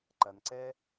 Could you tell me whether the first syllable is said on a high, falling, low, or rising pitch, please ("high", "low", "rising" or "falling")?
low